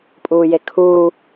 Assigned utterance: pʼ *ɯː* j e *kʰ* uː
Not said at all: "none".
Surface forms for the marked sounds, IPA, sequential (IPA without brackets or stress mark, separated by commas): uː, kʰ